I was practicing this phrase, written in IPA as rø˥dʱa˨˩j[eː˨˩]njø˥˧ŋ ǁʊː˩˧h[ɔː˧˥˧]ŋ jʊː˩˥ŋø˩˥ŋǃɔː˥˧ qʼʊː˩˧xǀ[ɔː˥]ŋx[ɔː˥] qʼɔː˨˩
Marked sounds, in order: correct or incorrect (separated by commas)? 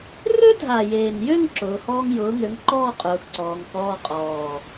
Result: correct, incorrect, incorrect, incorrect